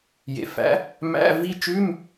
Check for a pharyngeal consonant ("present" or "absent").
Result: absent